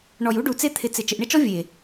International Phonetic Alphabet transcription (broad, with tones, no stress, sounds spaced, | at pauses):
ɳ ɔ˨ j u˦ ɖ u˨ t͡s e˦ t̪ʰ ɪ˨ t͡s ɪ˨ t͡ʃ ɪ˨ ʔ ɳ ɪ˦ t͡ʃ ɔ˦ vʲ e˨